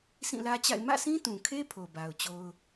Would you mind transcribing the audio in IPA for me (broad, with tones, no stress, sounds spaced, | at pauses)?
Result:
s ĩ˦˨ l ä˦ t͡ɕ a̰˦˨ ɪ̯ m ä̰˦˨ s ĩ˦ t ũ˨ kʰ e˦ pʰ o˨ b a˨ ʊ̯ t͡ɕ o˦ ʊ̯